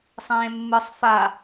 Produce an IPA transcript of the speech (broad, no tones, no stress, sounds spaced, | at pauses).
sˤ ẽː mː ɯ sˤ f a